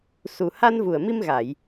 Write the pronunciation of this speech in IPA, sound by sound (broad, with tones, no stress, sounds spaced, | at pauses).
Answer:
s u˨˩ h a˧ n v u˨˩ ə̯ m i˧ m ɣ a˨˩˨ j